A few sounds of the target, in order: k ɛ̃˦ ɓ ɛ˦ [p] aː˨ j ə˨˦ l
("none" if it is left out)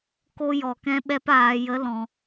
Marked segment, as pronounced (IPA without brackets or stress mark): p